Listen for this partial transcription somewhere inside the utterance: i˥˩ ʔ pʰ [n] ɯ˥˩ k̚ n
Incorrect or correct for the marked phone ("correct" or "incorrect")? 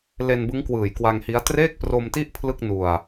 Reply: incorrect